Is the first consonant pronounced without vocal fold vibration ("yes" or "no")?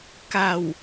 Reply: yes